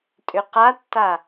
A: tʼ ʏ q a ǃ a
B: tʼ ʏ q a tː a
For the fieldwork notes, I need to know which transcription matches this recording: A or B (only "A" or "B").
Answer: B